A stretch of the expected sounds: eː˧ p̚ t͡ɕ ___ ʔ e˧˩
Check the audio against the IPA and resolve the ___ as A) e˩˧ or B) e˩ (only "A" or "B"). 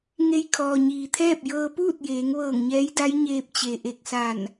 B